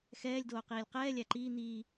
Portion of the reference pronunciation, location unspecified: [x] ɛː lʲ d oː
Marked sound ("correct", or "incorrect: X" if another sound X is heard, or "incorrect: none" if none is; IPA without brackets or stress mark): correct